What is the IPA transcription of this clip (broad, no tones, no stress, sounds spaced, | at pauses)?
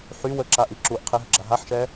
ħ y w ə ǁ a ʔ i ǁ u ʔ qʰ i ɦ ə ɡ͡ǁ a ɦ a ħ ʃ ɛ